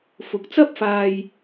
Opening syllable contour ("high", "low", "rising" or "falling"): rising